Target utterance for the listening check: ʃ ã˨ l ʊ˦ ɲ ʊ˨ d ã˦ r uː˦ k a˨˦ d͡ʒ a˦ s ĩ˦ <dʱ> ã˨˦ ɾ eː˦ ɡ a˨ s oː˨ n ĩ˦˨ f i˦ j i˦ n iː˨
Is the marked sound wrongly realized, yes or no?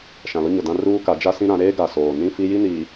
yes